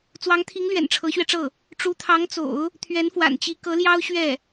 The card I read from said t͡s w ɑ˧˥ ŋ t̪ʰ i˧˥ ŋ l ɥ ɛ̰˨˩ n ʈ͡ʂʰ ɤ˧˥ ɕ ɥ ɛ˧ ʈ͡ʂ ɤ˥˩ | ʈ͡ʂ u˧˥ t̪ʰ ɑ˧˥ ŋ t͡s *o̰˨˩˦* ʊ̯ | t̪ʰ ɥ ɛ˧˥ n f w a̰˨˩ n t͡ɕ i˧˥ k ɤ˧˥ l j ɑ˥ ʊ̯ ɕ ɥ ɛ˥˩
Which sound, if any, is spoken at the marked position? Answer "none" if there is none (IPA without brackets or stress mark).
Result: o̰˨˩˦